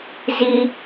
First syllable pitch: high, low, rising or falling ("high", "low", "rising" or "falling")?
high